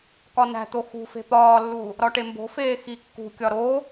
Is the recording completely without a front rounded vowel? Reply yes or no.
yes